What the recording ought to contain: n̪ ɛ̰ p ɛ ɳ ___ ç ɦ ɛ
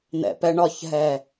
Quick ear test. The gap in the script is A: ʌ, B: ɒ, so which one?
B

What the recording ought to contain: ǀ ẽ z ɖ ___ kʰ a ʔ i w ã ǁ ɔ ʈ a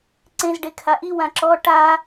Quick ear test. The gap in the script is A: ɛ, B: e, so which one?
B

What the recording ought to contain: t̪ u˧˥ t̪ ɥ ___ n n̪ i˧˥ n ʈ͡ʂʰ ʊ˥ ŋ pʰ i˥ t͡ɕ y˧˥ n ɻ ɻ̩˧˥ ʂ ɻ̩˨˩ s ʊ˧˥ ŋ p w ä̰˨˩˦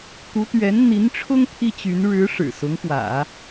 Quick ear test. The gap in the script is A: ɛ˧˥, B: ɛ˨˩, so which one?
A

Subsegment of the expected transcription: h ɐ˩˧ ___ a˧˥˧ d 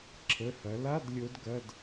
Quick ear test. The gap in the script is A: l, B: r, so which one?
A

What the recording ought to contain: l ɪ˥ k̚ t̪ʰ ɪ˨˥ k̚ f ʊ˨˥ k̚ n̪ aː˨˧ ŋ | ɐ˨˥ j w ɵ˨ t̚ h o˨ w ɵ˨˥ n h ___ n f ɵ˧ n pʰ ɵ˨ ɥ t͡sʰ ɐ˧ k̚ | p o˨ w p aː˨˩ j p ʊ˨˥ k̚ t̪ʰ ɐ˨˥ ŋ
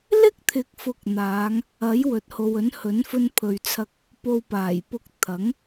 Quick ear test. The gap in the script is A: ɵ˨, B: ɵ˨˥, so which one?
B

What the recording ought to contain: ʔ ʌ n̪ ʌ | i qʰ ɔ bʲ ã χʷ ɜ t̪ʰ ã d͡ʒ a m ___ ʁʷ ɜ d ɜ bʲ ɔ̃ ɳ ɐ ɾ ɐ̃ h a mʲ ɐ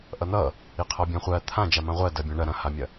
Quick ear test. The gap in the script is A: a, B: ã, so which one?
B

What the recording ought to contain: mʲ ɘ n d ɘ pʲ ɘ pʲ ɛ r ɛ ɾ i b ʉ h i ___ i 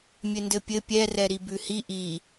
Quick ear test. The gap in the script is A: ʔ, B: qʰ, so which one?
A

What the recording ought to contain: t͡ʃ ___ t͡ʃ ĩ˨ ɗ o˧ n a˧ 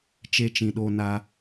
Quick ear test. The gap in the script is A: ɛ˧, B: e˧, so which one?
B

